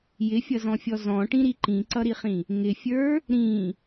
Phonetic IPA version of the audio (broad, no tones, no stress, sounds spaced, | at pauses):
j ɪ fʲ ʌ z ɔ̃ fʲ ɔ z ɔ̃ ʈ ĩ ɾ i ǃ ĩ ǀ ʌ ɾ i χ ĩ | ŋ ɪ fʲ ə˞ | ɾ ĩ